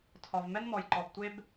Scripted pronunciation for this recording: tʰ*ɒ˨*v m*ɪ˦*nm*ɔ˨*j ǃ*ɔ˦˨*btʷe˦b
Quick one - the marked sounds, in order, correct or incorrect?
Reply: correct, incorrect, correct, incorrect

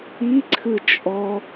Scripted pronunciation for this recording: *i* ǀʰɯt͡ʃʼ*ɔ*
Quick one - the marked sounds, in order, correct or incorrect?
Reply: correct, correct

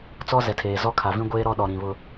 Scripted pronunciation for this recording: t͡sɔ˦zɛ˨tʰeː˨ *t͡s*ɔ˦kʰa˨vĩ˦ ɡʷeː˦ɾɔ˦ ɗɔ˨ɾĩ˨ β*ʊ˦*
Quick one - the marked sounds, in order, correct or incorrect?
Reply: incorrect, correct

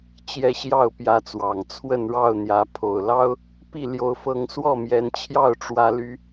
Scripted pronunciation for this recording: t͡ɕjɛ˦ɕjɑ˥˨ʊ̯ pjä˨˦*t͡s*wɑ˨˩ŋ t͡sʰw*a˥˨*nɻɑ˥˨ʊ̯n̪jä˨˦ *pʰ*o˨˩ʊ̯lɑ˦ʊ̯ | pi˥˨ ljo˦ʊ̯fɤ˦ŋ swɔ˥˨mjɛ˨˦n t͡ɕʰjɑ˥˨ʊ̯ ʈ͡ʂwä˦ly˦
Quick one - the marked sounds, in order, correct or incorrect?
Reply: correct, incorrect, correct

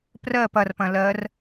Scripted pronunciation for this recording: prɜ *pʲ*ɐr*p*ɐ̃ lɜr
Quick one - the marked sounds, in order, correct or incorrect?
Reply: incorrect, correct

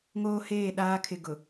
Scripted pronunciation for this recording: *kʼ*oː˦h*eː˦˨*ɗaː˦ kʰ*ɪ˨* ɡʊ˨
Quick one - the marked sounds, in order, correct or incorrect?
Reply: incorrect, correct, correct

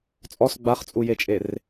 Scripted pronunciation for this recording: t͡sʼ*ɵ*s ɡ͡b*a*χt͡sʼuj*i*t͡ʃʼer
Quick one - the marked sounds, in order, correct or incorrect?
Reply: incorrect, correct, incorrect

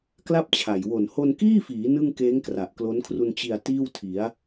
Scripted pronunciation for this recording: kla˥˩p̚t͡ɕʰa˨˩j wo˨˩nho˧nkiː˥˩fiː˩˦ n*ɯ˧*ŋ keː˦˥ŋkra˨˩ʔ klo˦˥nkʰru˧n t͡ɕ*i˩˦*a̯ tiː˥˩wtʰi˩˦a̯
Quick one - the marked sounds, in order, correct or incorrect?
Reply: incorrect, incorrect

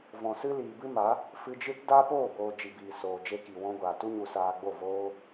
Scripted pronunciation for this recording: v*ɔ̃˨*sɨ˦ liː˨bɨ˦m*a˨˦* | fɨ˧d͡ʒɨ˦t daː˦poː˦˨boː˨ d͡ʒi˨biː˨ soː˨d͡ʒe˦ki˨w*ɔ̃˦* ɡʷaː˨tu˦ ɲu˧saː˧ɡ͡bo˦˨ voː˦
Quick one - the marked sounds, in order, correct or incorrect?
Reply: correct, correct, correct

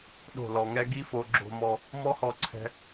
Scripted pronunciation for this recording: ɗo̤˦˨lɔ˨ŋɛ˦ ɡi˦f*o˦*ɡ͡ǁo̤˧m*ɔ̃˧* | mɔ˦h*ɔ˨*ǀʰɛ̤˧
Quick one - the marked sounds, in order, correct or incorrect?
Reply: incorrect, incorrect, incorrect

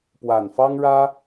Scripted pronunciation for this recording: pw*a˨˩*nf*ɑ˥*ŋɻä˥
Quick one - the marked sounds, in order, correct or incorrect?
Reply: correct, correct

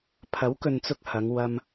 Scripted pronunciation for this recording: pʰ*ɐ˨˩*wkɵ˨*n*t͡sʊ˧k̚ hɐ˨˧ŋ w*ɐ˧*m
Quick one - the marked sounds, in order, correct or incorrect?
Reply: incorrect, correct, correct

